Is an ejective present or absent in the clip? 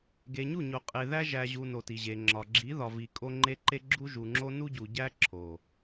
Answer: present